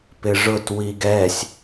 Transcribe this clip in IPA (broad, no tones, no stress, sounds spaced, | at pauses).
p ɪ ʐ ʊ t w i ɡ ɛ sʲ